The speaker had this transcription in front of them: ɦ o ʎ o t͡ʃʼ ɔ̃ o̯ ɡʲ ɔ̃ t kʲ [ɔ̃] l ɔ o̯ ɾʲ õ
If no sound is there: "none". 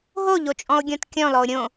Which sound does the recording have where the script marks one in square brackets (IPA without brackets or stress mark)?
ɔ̃